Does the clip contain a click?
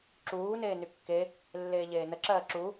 yes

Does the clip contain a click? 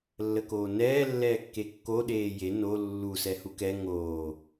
no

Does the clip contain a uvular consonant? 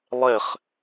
yes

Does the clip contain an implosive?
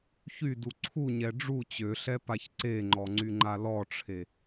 no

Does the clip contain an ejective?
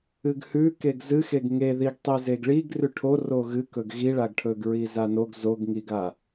no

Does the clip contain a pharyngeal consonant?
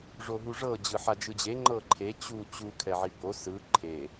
yes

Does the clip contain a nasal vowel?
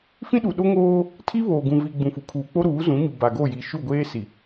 yes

